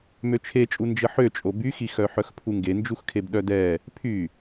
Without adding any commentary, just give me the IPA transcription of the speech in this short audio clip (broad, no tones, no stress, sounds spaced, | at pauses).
m ø t͡ʃʰ e t͡ʃʼ u n d͡ʒ ə ħ ø t͡ʃʼ o b y x i x œ ħ œ x pʰ u ŋ ɡ e n d͡ʒ u x kʰ e b ɗ œ d ɛ | pʰ y